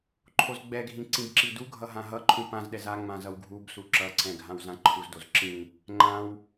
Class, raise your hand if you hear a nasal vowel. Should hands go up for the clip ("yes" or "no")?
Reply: yes